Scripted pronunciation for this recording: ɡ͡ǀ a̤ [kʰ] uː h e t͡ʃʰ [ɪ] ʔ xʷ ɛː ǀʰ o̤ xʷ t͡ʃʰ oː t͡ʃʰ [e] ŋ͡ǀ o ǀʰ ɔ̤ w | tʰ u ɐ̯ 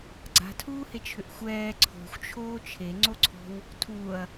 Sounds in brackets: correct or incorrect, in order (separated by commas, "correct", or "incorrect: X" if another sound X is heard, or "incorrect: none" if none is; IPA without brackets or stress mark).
incorrect: tʰ, incorrect: ʏ, correct